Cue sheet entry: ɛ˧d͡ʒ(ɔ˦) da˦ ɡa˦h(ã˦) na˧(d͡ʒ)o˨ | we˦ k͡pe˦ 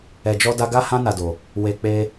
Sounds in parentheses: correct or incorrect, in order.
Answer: correct, correct, incorrect: d

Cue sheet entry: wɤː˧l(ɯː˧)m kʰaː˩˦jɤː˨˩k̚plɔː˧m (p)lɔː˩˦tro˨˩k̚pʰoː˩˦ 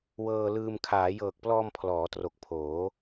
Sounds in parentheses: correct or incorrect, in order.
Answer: correct, incorrect: pʰ

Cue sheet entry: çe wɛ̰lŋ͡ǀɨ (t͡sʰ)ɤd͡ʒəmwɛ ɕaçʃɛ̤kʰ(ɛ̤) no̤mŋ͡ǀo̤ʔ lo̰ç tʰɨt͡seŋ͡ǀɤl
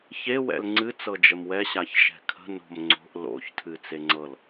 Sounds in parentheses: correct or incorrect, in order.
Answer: incorrect: t͡s, incorrect: ə̤

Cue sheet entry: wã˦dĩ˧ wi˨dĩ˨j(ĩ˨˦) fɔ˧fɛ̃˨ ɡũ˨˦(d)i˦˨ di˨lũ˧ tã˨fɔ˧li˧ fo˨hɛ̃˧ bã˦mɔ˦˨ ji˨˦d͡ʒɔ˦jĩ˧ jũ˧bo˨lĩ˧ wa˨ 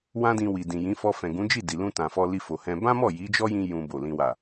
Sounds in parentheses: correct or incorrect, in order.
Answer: correct, incorrect: d͡ʒ

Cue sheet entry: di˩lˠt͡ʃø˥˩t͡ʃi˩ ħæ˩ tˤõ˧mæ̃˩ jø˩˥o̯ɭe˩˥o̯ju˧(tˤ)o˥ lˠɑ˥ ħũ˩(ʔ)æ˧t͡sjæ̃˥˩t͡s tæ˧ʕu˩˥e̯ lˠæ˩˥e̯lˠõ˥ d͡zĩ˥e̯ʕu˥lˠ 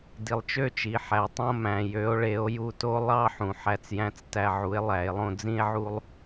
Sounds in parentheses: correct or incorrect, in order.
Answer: incorrect: t, incorrect: ħ

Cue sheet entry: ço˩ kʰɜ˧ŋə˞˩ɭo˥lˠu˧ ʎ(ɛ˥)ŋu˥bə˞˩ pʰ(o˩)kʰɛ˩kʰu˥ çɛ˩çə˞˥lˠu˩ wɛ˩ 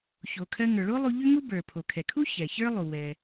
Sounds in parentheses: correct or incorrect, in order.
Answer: incorrect: ʏ˥, correct

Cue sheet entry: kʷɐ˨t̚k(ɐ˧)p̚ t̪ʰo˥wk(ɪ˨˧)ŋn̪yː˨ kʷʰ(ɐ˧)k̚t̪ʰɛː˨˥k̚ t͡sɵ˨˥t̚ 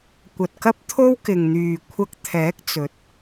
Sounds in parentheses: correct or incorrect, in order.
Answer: incorrect: ɐ˥, incorrect: ɪ˨, correct

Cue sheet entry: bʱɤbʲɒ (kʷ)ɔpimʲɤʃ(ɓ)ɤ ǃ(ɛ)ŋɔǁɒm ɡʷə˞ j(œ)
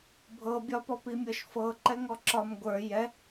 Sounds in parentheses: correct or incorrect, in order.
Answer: incorrect: p, incorrect: f, correct, incorrect: ɛ

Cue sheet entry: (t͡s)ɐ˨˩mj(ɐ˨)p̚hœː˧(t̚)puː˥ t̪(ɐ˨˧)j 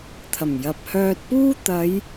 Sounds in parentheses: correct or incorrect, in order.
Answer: incorrect: t̪ʰ, correct, correct, correct

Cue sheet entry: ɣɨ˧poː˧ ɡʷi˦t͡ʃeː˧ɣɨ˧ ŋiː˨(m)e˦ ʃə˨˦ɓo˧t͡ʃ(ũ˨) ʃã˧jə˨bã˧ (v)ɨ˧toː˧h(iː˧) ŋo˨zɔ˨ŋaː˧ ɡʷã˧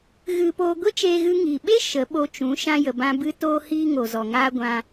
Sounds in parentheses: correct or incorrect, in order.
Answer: incorrect: ɓ, incorrect: ũ˨˦, incorrect: b, correct

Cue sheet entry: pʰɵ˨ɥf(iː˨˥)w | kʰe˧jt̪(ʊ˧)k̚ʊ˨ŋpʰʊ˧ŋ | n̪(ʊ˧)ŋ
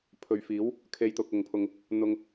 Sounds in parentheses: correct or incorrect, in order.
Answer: correct, correct, correct

